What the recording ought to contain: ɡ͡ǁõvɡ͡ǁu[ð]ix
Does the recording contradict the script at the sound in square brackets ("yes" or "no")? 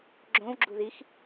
no